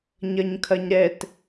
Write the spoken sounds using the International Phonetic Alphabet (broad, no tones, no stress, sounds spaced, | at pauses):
ɲ ɐ ɲ kʰ ɐ ɲ ɾ ɛ t